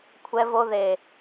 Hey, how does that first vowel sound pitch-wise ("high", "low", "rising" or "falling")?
high